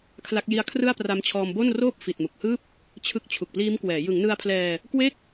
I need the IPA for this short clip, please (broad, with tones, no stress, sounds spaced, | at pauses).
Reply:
kʰ l a˦˥ k̚ j i˦˥ a̯ kʰ r ɯ˥˩ a̯ p r a˦˥ m t͡ɕʰ ɔː˧ m b o˥˩ n r oː˥˩ p̚ f i˨˩ t̚ m u˨˩ k̚ h ɯː˥˩ p̚ | t͡ɕʰ ɯ˦˥ k̚ t͡ɕʰ u˨˩ k̚ p l iː˦˥ m k w ɛː˩˦ j ɯ˩˦ ŋ n ɯ˧ a̯ pʰ l ɛː˧ | k w e˥˩ k̚